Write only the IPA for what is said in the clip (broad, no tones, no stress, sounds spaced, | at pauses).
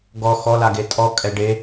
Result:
ɡ ɔ x ɔ l a ɡ e tʼ ɔ kʼ ɛ ɖ e